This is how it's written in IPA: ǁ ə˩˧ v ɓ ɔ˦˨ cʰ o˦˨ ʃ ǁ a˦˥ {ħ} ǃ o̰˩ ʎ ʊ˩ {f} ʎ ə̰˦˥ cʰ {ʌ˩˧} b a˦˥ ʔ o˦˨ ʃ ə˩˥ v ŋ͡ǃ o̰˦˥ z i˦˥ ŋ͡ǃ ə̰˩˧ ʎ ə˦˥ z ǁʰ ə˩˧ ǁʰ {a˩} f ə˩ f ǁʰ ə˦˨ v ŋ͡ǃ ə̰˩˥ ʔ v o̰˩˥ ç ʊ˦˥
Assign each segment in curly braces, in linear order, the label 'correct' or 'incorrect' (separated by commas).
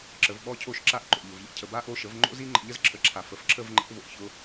incorrect, incorrect, incorrect, correct